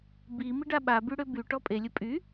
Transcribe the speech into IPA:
b i m i ɖ a ɓ a b y ɽ ø b y ʈ ɔ pʼ e lʲ ə pʼ y

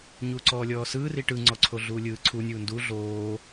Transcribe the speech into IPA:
ɲ uː ǀ ɔː lʲ ɔː s ɯː r i ʈ ɯ ŋ͡ǀ ɔ ǀʰ o ɮ uː lʲ ɯː ǀʰ u nʲ uː n d u ɮ oː

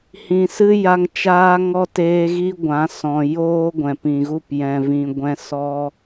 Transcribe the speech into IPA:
h ĩ˨ s ɨ˦ j a˧ ŋ t͡ʃ aː˧ ŋ ɔ˧ t eː˧ ɣ i˦ ɡʷ ã˨˦ s ɔ̃˨ j oː˦ ɡʷ ɛ̃˨ p ĩ˨ ɣ u˦˨ p j ɛ̃˨ v ĩ˨ ɡʷ ɛ̃˧ s ɔ˦

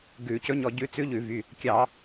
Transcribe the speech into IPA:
ɡ ʉ˧˩˧ c ɵ˧˥ ɲ ɔ˧ ɟ ʉ˧˥ t͡s ʉ˧˥ ʎ ʉ˧˩˧ v y˩˧˩ | kʲ ɑ˧˩˧

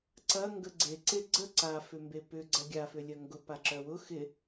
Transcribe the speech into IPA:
ǀ ɐ ŋ ɡ ə ɡ͡ǀ e ǀ e ɡ͡ǀ ə ǀ a f ʏ m b e p ʏ ɡ͡ǀ ɐ ɡʲ a f ʏ lʲ ɐ ŋ ɡ ʊ p a ǁ œ w ʊ x ɪ

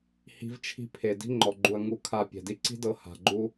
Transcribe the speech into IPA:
h i̤˧ v t͡ʃʰ i̤˧ pʰ e˨ d i̤˧ ŋ͡ǃ ɔ˨ ɡ͡ǃ u˨ ɐ̯ ŋ u˨ kʰ a˨ pʲ ɛ̤˨ d i˧ ǀ i̤˦ d ɤ˧ h a̤˨ ɡ͡ǃ u˧

